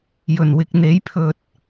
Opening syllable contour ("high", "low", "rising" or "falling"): low